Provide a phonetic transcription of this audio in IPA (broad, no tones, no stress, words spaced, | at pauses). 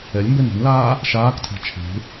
ɛlʲmbɛn ɛ̤nlaː | ʃaːktʰa̤ t͡ʃʰe̤